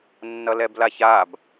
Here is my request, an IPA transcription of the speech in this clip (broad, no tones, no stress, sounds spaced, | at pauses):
nː ʌ l ɛ b l a ç a b